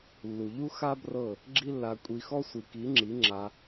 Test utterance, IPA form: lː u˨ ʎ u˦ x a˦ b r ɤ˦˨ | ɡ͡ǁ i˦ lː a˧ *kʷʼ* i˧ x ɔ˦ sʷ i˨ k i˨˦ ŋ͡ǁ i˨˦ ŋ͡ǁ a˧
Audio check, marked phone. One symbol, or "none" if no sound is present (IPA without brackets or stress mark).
kʷʼ